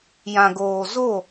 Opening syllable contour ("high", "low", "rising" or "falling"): low